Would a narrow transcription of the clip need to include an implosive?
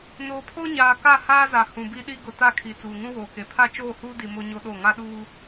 yes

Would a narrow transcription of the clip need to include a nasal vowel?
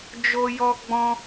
yes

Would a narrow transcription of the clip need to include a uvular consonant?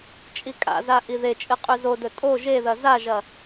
yes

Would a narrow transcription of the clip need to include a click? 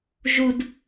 no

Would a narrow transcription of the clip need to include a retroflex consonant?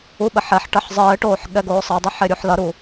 yes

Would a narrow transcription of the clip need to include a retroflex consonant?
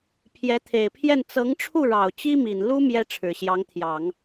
yes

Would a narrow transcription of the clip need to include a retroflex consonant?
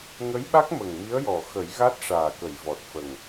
yes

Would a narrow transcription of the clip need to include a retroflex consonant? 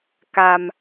no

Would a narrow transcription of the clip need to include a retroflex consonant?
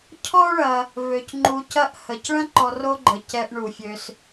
yes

